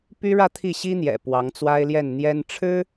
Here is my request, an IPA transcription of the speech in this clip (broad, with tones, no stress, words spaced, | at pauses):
py˥ɻä˥˧ t̪ʰi˥˩ɕi˥n̪jɛ̰˨˩ pwɑ˧˥ŋt͡swa˥ɪ̯ljɛ˥˩nn̪jɛ˥n ʈ͡ʂʰɻ̩˥